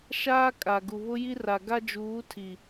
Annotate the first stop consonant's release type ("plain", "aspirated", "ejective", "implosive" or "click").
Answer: ejective